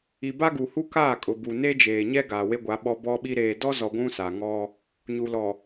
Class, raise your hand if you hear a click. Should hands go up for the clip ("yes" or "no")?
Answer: no